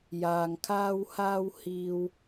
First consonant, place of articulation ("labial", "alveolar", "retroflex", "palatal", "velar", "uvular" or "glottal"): palatal